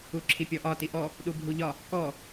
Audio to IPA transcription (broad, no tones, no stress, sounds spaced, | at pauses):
u ǁʰ i pʲ ɔ ʔ ɒ t i ʔ ɔ | ɗ u bʱ u ʎ ɒ | k ɔ